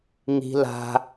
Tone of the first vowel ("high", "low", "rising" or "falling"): high